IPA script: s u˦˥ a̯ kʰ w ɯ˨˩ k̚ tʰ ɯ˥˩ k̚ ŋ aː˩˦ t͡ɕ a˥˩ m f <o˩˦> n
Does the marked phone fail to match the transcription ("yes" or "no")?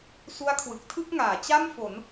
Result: no